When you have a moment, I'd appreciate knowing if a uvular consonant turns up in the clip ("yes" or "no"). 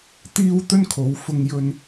no